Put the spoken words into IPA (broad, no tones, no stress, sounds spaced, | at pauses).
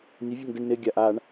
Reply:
nʲ ə vʲ ə ŋ d ɪ ɳ n ɪ ɡʲ a ʔ a ɳ